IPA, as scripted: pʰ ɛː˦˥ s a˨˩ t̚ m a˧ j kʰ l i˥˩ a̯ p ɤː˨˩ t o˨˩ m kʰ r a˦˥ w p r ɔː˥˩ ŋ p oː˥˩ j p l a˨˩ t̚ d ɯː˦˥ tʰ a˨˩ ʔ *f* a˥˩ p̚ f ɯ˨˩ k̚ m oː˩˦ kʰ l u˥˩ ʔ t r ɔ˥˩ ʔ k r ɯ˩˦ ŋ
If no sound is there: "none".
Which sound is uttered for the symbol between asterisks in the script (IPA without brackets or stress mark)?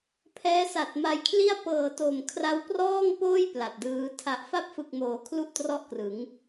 f